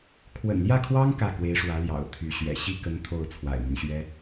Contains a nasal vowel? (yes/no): no